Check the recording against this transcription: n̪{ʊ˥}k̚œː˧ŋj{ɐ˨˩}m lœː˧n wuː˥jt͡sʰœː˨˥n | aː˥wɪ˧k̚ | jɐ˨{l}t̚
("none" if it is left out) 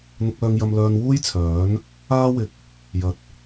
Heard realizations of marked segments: ʊ˧, ɐ˧, none

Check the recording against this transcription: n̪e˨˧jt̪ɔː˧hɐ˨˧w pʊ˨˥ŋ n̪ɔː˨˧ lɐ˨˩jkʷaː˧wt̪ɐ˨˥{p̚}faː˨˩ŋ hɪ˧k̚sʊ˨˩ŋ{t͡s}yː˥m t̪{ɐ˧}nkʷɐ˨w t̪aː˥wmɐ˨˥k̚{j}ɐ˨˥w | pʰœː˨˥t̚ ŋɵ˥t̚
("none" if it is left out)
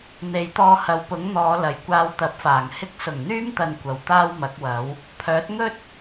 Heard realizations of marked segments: p̚, n̪, ɐ˧, w

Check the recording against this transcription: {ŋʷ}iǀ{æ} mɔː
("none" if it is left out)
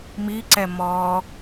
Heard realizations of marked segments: m, ɛ

